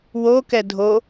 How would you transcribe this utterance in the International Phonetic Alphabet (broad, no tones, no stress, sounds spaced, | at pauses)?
w o k ɛ dʱ o